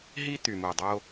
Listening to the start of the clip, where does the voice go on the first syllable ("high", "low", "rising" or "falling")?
high